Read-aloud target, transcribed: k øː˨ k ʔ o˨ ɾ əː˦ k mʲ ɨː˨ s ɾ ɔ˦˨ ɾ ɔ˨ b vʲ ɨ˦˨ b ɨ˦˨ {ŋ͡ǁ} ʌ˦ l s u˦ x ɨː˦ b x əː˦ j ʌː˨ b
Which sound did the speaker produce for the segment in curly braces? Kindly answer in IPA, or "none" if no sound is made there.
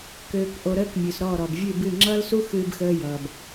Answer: ŋ͡ǁ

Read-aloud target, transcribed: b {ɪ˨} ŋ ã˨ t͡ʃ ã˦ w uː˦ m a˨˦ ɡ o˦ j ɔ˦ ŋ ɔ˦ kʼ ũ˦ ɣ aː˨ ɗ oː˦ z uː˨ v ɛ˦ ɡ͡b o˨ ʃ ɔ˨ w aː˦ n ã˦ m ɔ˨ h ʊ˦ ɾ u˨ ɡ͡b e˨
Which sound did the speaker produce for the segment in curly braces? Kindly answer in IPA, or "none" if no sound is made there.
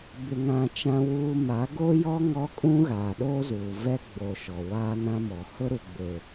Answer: ɪ˨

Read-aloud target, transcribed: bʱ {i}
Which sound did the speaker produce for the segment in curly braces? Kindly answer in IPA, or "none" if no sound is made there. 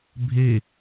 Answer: e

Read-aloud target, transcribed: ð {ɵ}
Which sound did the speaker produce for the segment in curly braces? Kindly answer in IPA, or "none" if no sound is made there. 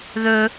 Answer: ɵ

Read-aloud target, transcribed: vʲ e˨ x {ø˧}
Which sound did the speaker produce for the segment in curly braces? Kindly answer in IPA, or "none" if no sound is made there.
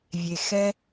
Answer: ɛ˧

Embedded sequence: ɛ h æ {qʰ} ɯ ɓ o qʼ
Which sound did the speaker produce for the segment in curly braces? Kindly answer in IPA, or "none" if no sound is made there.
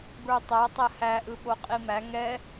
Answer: ʔ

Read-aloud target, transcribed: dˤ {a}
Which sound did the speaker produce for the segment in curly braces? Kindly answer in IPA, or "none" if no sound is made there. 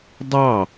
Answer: ɑ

